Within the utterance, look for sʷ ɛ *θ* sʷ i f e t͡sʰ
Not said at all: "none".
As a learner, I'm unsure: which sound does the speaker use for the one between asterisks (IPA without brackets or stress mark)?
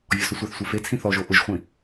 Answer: θ